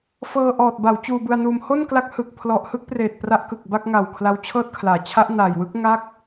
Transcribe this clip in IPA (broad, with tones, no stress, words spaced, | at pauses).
fɤː˧ʔɔː˨˩t̚ ba˩˦w t͡ɕuː˧bɯ˧a̯nuː˧m ho˥˩nkla˦˥k̚ hɯ˨˩k̚ pʰlɔ˨˩ʔhɯ˥˩k̚preː˨˩t̚ pra˦˥ʔkɯ˨˩k̚ ba˥˩k̚ŋa˨˩w kʰla˦˥wt͡ɕʰɤː˥˩t̚kʰlaː˩˦ t͡ɕʰa˦˥ʔ na˨˩jwɯ˦˥k̚ ŋa˥˩k̚